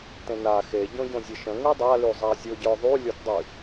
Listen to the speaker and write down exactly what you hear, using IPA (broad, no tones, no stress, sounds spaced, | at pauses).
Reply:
t ẽ n a x e ɟ õ ɟ õ zʲ ə ʃ ə̃ ŋ y dˤ a l y zˤ a zʲ o ɟ ə˞ ðˤ y lʲ o t dˤ y